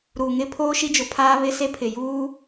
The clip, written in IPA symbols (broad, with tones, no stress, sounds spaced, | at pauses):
ɾ uː˨ ŋ ɪ˦ pʰ oː˦ ʃ i˦ d͡ʒ ʊ˨ pʰ aː˦ β ɪ˦ s e˦ pʰ ɪ˨ j uː˦